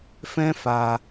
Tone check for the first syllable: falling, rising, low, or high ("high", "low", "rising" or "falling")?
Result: high